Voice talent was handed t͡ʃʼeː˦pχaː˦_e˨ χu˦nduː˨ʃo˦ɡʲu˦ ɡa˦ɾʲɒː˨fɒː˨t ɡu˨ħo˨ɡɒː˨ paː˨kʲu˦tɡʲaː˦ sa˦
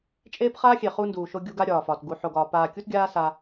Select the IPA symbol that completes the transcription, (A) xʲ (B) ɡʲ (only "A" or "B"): A